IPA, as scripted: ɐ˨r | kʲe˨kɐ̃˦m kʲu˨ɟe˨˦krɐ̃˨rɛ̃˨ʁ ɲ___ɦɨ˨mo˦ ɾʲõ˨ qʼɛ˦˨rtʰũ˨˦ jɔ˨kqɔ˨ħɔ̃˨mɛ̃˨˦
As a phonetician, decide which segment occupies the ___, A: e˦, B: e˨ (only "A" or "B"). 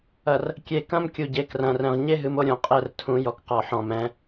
A